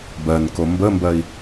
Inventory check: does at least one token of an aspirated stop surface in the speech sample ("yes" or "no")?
no